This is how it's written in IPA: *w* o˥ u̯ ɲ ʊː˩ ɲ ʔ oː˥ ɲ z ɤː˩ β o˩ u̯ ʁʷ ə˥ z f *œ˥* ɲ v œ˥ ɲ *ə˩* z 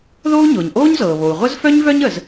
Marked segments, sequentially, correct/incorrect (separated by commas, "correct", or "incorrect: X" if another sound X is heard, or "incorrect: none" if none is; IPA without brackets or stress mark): incorrect: ð, correct, correct